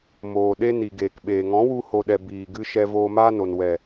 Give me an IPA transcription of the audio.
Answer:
m oː˨ ɗ e˧ n i˨ ɡ eː˨ k ɓ eː˨ ŋ ɔ̃˨˦ w u˧ h o˨ ɗ ɛ˨ b iː˨ ɡ ɨ˧ ʃ ɛ˧ v oː˧ m aː˦ n o˨ n w ɛ˨

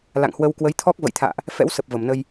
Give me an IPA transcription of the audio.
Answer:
l a̰˧˨ ŋ h w ə˧ w k w ə˨˦ j t̪ʰ ɔ˦˥ k̚ v ə̰˧˨ j t̪ʰ a̰ː˧˨ ʔ | f ɛ̰˧˥ w s ə˨˩ p̚ v ə˧˩ m n ə˧ j

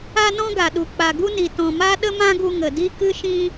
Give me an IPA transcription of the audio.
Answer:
a˧ n ɔ̃˧ ɡ a˨ ɗ u˨ k͡p a˨ ɡ u˦ n i˨ t ɔ̃˨ m a˦ ɗ ə˦ m ã˦ ɡ u˧ ŋ ə˨ d i˦ k ɨ˦ ʃ ĩ˦

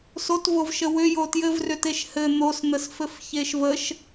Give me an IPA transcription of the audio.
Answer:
s o t v o v ʃ ə w ʏ j o t j ɘ v r ʏ t e ʃ h ɘ n̪ o s n̪ ə s f ɘ f ç e ʃ v ə ʃ

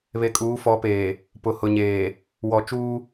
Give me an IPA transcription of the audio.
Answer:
β e˨ kʼ uː˨˦ f ɔ˨˦ p eː˨ | p ʊ˨ h ʊ˨ ɲ eː˨ | w ɔ˨ t͡ʃ uː˦

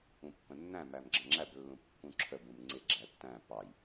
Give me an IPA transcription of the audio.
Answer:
ũ pː ə̃ nː æ̃ m æ m ɡ͡ǁ ə̃ ŋ͡ǁ æ b lː ũ p kː ũ ǁʰ ə b ũ m ŋ͡ǀ ɪ ɡ͡ǁ æ tː æ̃ p ɑ j

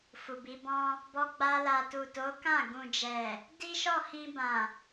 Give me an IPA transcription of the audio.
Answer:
f u˨ b i˨˦ b ɔ̃˧ | b ɔ˧ ɡ͡b a˧ l a˨ t u˨ t o˨˦ k ã˦˨ ɡ ũ˨ d͡ʒ ɛ˨ | d i˦ ʃ ɔ˦˨ h ĩ˧ b ã˨

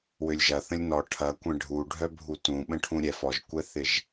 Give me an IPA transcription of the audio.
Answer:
w ø lʲ ʒ ɐ θ ə̃ lʲ n ɔ ʈʰ ɐ kʷ ɛ̃ ɖʱ u ɖʱ œ bʱ u t ũ ɓ ə̃ ʈʰ ũ ɾʲ ɛ f ɔ ʒ kʷ ɛ θ ɪ ʒ

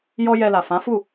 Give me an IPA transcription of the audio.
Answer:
j ɔ˦ j ɛ˧ l a˨ f ã˨˦ f u˦˨

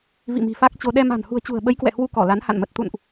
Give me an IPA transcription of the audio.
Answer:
v ḭ˧˨ m i̤˨˩ f a˦˥ k̚ t͡ɕ o˧ ɗ ɛ˧ m a̤˨˩ n h ṳ˨˩ ə̯ t͡ɕ ṳ˨˩ ə̯ ɓ ə˨˦ j k w ɛ̰˧˨ h w u˧ k ɔ˧˩ l a˨˦ n h a̰˧˨ n m ə˨˩ t̚ t̪ ṵ˧˨ n ʔ

